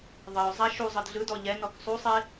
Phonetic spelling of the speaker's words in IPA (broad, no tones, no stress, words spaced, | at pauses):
ðˤɤʊ̯zˤa ʃuzˤɯd ɮɯdɔ ʎɛnɔk sˤusˤe